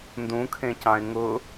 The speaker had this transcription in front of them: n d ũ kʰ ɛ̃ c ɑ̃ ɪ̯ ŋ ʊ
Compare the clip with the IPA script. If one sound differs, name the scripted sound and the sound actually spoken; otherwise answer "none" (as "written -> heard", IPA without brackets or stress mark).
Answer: ɛ̃ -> ẽ